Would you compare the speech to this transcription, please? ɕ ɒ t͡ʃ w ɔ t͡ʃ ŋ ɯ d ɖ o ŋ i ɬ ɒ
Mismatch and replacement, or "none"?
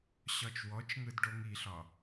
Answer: none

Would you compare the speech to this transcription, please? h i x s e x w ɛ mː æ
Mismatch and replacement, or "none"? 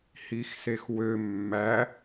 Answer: ɛ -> ø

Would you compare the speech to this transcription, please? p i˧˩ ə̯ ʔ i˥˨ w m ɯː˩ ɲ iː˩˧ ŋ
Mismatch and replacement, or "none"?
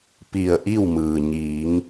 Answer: none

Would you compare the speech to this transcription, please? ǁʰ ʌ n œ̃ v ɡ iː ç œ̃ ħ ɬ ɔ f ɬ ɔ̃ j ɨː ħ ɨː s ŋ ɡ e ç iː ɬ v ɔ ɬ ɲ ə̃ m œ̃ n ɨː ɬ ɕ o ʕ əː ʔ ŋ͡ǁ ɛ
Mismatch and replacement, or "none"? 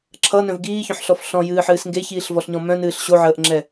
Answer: ə̃ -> ɔ̃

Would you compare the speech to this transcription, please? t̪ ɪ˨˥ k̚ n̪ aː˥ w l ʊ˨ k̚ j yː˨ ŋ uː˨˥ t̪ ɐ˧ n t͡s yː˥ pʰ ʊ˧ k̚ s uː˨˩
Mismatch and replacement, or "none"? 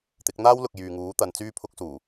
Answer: ɐ˧ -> ɐ˨˧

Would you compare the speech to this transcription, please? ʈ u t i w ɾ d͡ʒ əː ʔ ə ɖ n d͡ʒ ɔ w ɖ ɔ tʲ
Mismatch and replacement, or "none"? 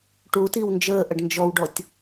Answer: ɾ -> n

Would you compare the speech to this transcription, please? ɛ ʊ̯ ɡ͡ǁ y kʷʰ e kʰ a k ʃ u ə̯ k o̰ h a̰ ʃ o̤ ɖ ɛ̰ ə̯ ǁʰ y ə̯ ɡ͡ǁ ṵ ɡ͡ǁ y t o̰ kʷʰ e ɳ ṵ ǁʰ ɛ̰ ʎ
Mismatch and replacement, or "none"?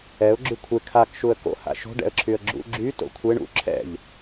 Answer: none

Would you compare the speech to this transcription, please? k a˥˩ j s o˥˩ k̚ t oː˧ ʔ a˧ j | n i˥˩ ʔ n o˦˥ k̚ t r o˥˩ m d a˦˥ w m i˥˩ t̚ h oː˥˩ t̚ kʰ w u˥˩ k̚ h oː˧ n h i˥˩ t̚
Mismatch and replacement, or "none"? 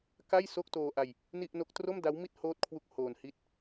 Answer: none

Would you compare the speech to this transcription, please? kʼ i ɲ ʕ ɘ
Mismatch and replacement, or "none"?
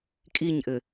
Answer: ʕ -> ʔ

